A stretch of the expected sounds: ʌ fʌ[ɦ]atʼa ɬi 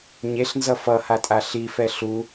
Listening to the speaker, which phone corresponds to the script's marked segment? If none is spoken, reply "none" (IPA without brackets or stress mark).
h